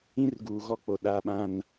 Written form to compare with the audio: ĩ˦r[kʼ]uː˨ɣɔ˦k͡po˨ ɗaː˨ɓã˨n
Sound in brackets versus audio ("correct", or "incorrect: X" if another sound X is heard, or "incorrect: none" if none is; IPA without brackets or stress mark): incorrect: ɡ